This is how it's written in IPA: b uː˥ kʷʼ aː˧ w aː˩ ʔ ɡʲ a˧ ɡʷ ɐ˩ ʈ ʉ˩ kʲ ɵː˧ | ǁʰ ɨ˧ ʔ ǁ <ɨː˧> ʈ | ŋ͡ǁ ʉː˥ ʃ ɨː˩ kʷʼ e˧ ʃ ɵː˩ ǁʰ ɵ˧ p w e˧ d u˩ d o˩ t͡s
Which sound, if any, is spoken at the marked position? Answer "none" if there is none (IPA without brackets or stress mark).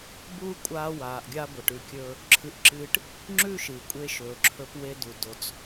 ɨː˧